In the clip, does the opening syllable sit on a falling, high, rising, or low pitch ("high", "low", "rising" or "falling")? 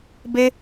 high